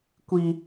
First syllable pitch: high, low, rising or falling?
high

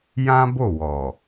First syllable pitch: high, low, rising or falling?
high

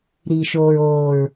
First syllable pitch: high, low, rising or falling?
low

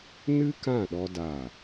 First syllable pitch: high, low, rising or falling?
high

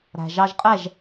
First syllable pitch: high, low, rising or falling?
low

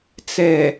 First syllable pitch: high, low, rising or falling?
low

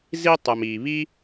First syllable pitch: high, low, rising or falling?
high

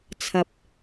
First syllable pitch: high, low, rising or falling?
rising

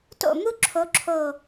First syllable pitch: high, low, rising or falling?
falling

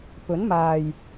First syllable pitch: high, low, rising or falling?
rising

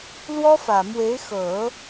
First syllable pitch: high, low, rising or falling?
high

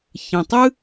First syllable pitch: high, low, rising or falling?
low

